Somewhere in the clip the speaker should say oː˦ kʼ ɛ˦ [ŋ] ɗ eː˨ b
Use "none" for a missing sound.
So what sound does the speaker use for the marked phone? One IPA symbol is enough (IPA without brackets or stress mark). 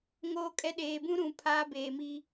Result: none